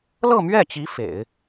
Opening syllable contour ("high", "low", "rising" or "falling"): falling